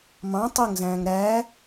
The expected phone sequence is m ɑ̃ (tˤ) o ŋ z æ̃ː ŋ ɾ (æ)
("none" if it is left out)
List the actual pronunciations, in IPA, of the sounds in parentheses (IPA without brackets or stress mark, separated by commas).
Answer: tˤ, æ